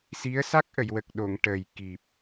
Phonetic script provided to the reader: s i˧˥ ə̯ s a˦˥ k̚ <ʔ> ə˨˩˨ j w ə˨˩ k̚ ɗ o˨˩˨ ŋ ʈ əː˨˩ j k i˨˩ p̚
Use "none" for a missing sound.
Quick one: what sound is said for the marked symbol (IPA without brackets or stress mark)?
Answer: ʔ